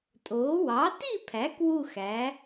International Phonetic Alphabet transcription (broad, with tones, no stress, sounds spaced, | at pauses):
tʼ oː˩˥ w ɑ˩˥ t i˥˨ pʰ æ˩˥ k w u˥˨ x æ˩˥